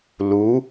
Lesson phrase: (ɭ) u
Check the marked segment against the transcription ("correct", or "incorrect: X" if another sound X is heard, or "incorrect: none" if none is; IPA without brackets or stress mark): incorrect: l